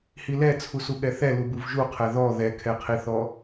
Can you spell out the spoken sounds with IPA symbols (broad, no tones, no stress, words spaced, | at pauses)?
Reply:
hilɛ t͡sʰusuɠɛθɛ lubuvʒuqʰɛ ðɔ ðɛkʰɛqʰiθɔ